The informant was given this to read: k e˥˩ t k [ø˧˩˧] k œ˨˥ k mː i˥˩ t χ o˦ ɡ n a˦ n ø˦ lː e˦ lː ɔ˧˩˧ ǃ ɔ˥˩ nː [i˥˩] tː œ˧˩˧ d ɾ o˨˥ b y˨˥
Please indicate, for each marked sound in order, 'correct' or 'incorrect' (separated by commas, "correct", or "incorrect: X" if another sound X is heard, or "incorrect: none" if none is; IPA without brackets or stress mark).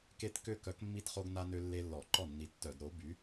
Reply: incorrect: ø˥˩, incorrect: i˨˥